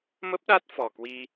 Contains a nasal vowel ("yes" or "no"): no